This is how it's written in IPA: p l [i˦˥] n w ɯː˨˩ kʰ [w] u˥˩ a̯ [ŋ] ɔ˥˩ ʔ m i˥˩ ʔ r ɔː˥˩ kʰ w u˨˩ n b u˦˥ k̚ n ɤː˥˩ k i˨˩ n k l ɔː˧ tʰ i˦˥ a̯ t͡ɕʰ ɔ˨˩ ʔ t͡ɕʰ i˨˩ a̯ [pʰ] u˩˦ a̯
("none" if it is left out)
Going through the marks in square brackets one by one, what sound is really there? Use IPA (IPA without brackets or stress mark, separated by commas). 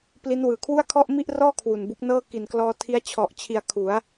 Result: i˦˥, w, kʰ, kʰ